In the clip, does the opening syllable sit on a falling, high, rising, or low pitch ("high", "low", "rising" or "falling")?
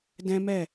high